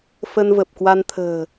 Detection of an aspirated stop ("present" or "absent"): present